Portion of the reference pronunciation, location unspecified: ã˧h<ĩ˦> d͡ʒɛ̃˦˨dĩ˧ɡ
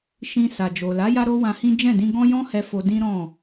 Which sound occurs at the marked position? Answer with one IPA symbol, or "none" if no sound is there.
ĩ˦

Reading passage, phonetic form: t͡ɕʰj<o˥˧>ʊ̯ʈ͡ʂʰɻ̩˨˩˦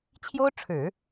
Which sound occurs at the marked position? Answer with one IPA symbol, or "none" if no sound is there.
o˥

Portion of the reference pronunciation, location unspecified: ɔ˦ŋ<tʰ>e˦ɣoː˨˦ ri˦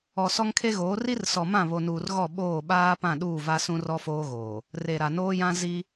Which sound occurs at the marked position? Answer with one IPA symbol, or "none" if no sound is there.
kʰ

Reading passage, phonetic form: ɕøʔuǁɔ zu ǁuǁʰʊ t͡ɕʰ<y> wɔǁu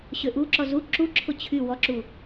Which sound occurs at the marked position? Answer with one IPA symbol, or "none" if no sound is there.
y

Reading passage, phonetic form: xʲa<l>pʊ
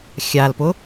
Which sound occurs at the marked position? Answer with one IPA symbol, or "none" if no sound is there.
l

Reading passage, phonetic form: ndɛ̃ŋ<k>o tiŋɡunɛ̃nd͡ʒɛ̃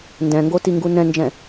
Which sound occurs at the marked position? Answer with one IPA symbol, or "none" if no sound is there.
ɡ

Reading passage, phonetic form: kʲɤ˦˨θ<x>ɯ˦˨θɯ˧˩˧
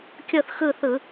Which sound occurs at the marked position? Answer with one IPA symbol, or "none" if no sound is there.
x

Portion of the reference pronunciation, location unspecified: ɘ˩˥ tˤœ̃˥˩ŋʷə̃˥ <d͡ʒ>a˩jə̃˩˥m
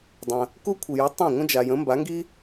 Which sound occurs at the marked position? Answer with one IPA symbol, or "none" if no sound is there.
d͡ʒ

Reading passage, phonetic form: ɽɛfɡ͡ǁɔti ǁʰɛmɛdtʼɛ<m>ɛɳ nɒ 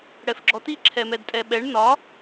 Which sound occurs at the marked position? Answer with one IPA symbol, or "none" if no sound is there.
ɓ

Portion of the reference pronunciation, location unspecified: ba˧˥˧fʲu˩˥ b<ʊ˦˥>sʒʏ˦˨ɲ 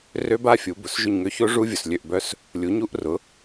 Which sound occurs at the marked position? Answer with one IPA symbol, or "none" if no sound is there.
ʊ˩˧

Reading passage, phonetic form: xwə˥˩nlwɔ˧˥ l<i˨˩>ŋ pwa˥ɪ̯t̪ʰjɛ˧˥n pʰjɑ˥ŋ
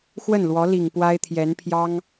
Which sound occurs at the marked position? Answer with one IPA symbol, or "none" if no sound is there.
i˨˩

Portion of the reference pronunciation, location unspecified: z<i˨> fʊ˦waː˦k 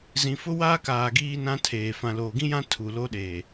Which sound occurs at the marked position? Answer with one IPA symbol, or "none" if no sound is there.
ĩ˨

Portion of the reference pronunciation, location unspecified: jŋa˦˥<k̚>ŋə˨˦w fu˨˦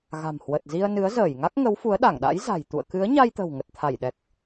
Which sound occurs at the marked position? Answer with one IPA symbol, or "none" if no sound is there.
k̚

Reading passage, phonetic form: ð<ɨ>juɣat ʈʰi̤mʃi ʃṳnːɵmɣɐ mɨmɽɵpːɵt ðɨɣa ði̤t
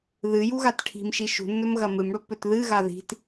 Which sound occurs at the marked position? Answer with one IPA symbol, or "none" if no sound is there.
ɨ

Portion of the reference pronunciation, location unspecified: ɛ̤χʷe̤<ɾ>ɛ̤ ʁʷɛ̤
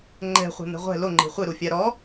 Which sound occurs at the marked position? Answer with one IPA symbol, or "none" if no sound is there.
n̪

